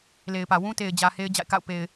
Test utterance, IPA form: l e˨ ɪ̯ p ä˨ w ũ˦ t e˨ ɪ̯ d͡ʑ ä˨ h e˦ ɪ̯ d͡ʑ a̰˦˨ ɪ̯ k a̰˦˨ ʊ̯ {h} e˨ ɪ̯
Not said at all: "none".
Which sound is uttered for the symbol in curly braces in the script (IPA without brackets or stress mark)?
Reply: p